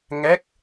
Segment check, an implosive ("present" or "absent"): absent